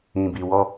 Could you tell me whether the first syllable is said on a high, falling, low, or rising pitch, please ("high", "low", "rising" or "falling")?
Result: low